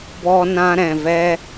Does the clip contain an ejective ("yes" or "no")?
no